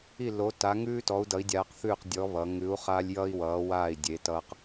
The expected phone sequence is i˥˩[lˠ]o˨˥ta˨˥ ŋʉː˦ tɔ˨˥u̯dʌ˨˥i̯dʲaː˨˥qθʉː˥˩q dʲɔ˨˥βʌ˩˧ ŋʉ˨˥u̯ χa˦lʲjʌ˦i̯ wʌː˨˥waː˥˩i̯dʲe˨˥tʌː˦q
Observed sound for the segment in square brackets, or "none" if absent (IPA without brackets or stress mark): l